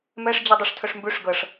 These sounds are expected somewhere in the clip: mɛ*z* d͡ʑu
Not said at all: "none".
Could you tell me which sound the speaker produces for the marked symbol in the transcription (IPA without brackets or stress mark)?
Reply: ʂ